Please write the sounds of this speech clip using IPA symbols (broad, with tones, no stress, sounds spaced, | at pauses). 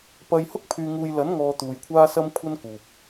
p ɐ˧ j h ʊ˥ k̚ pʰ yː˧ ŋ uː˧ j l ɐ˨˥ n ŋ ɔː˨ t̪ uː˨ j kʷʰ aː˥ s ɐ˥ m kʷʰ ɐ˥ n k uː˨ p̚